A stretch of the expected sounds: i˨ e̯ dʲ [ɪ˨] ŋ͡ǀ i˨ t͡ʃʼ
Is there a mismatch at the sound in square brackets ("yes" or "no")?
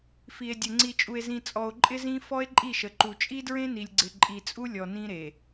yes